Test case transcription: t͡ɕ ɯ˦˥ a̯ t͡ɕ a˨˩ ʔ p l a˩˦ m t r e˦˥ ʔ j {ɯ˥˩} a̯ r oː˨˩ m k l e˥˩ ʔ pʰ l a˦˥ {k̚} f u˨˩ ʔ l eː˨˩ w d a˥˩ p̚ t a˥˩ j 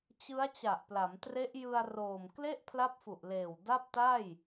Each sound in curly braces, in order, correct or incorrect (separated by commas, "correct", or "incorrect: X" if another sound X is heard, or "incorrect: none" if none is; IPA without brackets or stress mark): incorrect: ɯ˧, incorrect: p̚